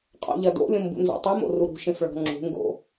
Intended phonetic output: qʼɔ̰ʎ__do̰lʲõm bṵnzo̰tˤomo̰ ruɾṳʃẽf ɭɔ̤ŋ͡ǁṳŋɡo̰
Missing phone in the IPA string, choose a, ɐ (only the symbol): ɐ